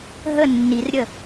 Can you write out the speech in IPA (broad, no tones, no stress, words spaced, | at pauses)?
ɦə nːirɾʲə